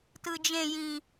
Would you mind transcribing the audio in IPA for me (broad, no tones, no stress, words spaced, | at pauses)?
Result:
tɯd͡ʒẽjĩ